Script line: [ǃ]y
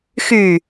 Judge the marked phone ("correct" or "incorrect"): incorrect